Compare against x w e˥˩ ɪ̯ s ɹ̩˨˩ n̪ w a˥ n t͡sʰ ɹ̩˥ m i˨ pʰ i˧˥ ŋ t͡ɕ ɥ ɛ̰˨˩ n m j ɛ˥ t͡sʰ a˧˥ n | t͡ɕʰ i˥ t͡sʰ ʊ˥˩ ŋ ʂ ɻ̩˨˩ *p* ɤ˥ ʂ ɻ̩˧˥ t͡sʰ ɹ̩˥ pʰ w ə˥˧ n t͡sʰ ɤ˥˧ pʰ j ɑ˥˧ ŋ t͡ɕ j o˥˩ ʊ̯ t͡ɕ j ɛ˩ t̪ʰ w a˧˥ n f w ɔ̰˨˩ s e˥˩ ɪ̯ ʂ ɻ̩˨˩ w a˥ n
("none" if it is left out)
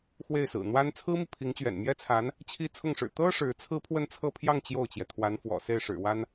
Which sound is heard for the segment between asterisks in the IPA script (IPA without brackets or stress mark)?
t̪